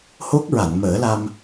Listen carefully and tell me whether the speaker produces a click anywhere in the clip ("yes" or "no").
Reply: no